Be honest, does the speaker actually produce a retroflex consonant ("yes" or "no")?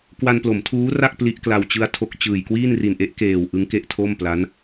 no